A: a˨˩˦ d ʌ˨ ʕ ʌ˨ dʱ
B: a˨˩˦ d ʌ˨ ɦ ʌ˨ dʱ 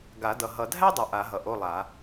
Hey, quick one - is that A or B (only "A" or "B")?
B